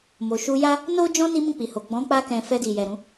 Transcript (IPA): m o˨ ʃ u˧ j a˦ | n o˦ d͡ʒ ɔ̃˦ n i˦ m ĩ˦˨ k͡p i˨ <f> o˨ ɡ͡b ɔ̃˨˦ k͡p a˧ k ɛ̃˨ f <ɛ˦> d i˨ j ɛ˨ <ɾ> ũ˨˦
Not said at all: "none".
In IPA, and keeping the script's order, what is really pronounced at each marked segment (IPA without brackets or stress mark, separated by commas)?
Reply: h, ɛ˧, ɾ